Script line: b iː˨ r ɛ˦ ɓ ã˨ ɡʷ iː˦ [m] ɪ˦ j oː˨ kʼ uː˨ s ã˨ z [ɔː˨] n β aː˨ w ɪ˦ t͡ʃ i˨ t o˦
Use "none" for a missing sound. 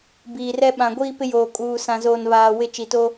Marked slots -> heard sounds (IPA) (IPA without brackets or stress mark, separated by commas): p, oː˨